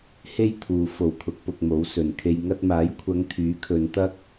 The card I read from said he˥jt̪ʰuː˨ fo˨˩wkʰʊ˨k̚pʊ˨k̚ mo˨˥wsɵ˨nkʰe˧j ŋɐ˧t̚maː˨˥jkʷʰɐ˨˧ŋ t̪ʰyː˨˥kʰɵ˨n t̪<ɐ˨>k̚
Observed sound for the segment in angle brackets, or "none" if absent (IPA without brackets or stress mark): ɐ˧